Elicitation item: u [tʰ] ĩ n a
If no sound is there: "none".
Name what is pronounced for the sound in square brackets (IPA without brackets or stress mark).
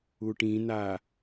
ʈ